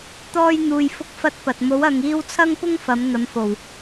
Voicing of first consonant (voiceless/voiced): voiceless